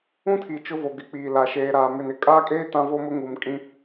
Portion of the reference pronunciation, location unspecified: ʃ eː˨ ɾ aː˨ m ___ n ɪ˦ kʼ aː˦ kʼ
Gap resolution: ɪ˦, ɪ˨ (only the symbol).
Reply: ɪ˨